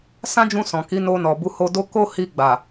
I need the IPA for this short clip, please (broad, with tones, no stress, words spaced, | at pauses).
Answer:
sã˦d͡ʒũ˧ sɔ̃˨ki˨˦no˧ nɔ˨bu˨˦ho˧ do˧ ko˦ hi˧ɡ͡ba˨